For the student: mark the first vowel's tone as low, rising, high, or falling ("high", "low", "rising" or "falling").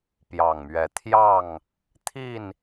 low